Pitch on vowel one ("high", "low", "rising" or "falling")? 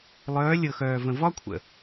rising